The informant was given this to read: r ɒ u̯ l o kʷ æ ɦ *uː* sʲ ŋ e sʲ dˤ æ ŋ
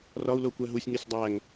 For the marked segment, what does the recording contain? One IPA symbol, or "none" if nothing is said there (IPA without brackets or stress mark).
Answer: u